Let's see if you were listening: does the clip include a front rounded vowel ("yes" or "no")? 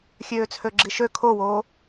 yes